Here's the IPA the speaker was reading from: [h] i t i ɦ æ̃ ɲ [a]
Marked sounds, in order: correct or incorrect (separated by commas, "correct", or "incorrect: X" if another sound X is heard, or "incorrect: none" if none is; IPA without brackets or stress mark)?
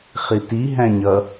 incorrect: χ, incorrect: ʌ